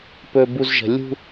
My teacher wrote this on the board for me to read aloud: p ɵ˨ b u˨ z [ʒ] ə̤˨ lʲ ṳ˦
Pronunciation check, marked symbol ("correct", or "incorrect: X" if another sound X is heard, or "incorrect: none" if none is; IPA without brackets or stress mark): correct